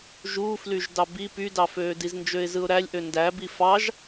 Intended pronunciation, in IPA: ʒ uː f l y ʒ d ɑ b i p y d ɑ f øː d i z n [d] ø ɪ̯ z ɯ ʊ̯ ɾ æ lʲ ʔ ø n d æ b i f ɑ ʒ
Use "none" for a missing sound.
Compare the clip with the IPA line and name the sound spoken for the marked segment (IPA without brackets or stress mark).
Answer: d͡ʒ